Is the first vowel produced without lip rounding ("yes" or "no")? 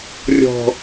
no